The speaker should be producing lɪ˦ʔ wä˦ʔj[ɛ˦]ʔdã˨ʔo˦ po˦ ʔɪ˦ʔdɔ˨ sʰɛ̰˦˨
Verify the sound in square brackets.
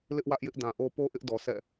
incorrect: ɪ˦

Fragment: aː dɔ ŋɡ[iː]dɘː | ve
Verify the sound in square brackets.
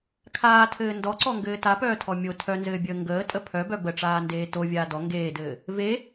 incorrect: eː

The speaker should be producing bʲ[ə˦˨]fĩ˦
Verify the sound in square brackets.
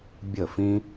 correct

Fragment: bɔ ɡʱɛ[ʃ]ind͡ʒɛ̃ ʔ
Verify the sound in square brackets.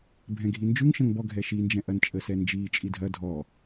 correct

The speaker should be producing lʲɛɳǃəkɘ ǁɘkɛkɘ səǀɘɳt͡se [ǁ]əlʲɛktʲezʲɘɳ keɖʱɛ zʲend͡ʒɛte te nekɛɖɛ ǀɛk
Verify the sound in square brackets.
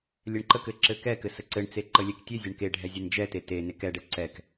incorrect: ǃ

